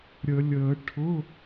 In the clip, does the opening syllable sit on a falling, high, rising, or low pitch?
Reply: low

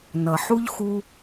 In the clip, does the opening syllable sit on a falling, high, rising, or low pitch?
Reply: low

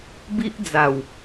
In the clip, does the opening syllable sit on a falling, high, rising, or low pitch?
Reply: high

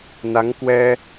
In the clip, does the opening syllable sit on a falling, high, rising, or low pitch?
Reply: rising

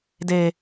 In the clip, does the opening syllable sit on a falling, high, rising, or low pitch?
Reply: low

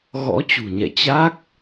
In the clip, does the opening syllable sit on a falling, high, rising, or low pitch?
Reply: rising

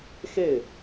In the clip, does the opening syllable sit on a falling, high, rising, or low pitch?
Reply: falling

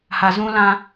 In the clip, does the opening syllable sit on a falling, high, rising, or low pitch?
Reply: low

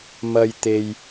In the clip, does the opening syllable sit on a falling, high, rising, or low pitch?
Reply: high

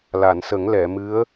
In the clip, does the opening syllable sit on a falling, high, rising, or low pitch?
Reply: low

